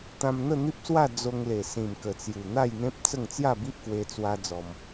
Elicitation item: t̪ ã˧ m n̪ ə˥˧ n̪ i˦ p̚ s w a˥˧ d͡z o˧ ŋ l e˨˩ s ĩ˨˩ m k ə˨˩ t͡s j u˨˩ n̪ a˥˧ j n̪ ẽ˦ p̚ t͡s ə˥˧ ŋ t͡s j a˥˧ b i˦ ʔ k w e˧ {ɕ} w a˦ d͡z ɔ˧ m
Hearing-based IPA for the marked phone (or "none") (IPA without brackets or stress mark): t͡s